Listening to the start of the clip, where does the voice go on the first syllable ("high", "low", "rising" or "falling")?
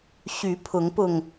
rising